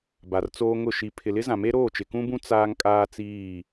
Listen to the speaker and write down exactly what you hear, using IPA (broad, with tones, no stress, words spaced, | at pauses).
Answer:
ba˨rt͡soː˦ŋʊ˦˨ ʃi˨ pʰɪ˨lɪ˦zã˨me˦ ɾoː˦˨t͡ʃɪ˨kũ˦bũ˦ t͡saː˦ŋ kʼaː˦t͡siː˦˨